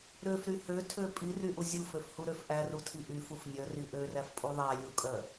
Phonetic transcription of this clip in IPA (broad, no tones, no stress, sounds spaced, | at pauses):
ɾ ø f ɾ y h ø tʰ ø pʼ i r y ʔ u zʲ u f ø f h u ɾ ø f ʔ æ r u tʰ i ʔ y f u f nʲ œ r i ʔ ø r æ f pʼ u ðˤ æ lʲ u kʼ œ